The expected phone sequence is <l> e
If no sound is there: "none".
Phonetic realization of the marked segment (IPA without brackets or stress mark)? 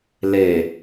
l